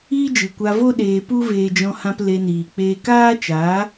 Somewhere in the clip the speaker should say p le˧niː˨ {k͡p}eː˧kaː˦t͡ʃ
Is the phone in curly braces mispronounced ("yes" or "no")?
no